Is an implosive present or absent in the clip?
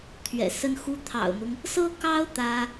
absent